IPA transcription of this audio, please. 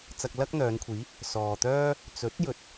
t͡s ɐ˧ k̚ l ɐ˥ k̚ n̪ œː˨˧ n kʷʰ iː˨˥ | s ɔː˨ t̪ œː˥ | t͡s ɵ˨˥ t̚ j ɵ˨ t̚

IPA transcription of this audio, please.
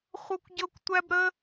χʷ ɤ˥ kʷ ɟ ɤ˥ kʷ tʷ æ˥ b ɾ ə˥

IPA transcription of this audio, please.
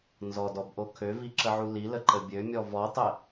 n z ɔ d ɔ b ʔ o kʰ ø v i ǁ ə ʕ u l i l ə ǃ ə bʲ ø mʲ ɔ v ɔ tˤ ə

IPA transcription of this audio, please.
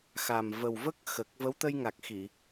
x a˨˩ m v ə˨˩ w v ə˦˥ k̚ x ə˨˩ k̚ v ə˧˥ w t̪ ə˧ j ŋ a˨˩ k̚ x i˨˩˨

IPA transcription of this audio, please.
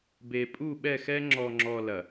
b e˨ pʼ u˦˨ ɓ ɛ˦˨ x ɛ˦ ŋ͡ǁ ɔ˨ ŋ͡ǁ ɔ˨ l ɐ˨

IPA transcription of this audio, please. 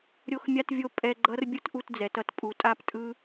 ɾʲ o˦ x mʲ a˦ t vʲ o˦ pʼ ɛ˧ ɡ͡ǃ ʌ˦ r bʲ ɯ˦ t ʔ u˧ t d͡z ɛ˨ t ʌ˦ t pʼ u˨ tʼ a˦˨ p tʼ ɯ˦

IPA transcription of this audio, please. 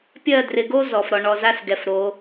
pʲ ɜ˦˨ d r ɪ˨ ɡ o˦ z ɔ˨ f ɾ ɔ˨ ɳ ɔ˨ z a˦ s ɡ ɛ˨ f ɾ o˨˦

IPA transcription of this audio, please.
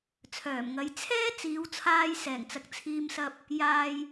t͡sʰ œː˨˩ m ŋ ɐ˨˧ j t͡sʰ ɛː˥ t͡s iː˨˧ w t͡sʰ aː˧ j s ɛː˨˩ ŋ t͡s ɐ˨ k̚ t͡sʰ iː˧ m s ɐ˧ p̚ | j aː˨ j

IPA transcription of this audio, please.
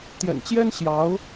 t̪ j ɛ̰˨˩ n t͡ɕ j ɛ˥ n ɕ j ɑ˧˥ ʊ̯

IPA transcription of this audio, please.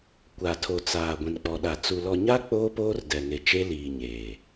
kʷ a˨ tʰ o˨ t͡s aː˨ ɡʷ ĩ˨ n k͡p ɔ˨ ɗ a˨ t͡s u˨ l ɔ˨ ɲ a˦ k͡p oː˦ p oː˦ r d ɛ˨ ŋ e˨ t͡ʃ e˦ l iː˨ ɲ eː˨

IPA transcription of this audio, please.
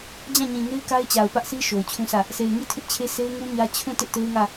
d͡ʑ ã˦˨ ɲ ĩ˨ ŋ e˦ ɪ̯ k a˦ ɪ̯ t͡ɕ a˨ ʊ̯ p ä˦ ʔ sʰ i˦ ʃ o˨ ʊ̯ t͡ɕʰ ũ˦ s ä˦˨ | s e˨ ɪ̯ ŋ i˦˨ tʰ ɪ˦ ʔ t͡ɕʰ e˦ sʰ e˦ ɪ̯ ŋ u˦ ɲ ä˦ t͡ɕʰ ũ˦˨ t ɪ˦ ʔ t e˦ ɪ̯ ŋ ä˦˨

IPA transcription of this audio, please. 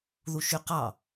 ð u ʃ y q ɑ

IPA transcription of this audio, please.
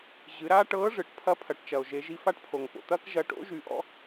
ʑ ɨ˩˧ ɾ aː˥ ʈ ɤː˧˥ ʐ ɨ˩ ʈ pʰ ɐ˧˥ pʰ ɐ˩˧ ʈ t͡ʃ ɐ˩ o̯ ʒ e˩˧ ʒ i˧ f a˥ ʈ pʰ o˩ ŋ p o̰˩ t̪ ɐː˥ k ʒ ɐ˧ ʈ o̰˧˥ ʒ y˩˧ ʔ ɔ̰˥

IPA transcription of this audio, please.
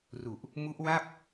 r u˨˩ ʔ | m u˦˥ ʔ w a˥˩ p̚

